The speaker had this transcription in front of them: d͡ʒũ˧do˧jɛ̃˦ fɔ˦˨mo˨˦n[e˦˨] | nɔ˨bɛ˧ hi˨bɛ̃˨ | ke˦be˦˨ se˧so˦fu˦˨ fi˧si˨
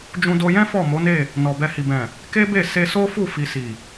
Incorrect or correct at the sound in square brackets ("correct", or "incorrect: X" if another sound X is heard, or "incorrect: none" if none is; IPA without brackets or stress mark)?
correct